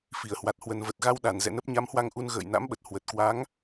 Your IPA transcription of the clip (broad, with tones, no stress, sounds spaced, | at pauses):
f i˧˩ ə̯ h w a˨˩ t̚ h w ə˨˩ n v ə˨˩ t̚ ɣ a˧ w ɗ a˧˩ n z ɛ̰˧˨ n ə˦˥ p̚ ɲ a˨˦ m h w a˧ ŋ ʔ u˧ n ɣ ə̰ː˧˨ j n a̰˧˥ m ɓ ə˨˩ t̚ h w ə˨˩ t̚ k w a˨˦ ŋ